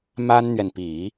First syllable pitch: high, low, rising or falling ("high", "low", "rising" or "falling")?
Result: high